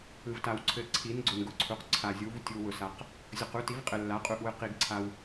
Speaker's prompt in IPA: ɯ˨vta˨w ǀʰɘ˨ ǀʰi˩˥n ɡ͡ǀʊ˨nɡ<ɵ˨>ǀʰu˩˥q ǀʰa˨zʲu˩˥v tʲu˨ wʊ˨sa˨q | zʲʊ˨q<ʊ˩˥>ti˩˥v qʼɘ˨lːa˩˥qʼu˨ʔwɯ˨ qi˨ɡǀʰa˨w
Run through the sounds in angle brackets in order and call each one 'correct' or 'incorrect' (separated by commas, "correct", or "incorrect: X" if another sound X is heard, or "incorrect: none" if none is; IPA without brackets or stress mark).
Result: incorrect: ʊ˨, incorrect: u˩˥